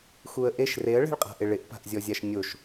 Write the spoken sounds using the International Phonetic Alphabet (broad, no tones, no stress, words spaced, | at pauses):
xuə̯ʔeʃ reə̯ɭɛ̤ɭqʼa̤ʔɪ ɭɪʔpa̤ʔzʲɔzʲaʃ nʲoʃ